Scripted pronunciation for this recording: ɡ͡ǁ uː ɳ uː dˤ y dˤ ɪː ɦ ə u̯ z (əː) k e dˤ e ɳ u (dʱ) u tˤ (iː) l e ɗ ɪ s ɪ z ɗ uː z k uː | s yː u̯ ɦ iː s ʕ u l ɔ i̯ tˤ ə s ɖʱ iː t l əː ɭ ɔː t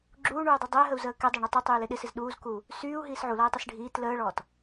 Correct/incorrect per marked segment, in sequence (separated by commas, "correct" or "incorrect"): correct, incorrect, incorrect